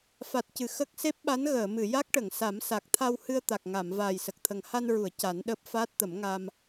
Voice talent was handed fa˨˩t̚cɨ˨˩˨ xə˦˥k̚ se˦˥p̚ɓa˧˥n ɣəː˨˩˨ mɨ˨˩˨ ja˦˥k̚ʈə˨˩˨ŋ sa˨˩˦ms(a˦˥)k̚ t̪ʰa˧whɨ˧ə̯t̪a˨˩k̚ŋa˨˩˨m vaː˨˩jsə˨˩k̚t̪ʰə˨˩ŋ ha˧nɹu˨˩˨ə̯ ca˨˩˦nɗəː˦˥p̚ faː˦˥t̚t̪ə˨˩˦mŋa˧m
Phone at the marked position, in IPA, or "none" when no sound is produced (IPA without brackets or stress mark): a˨˩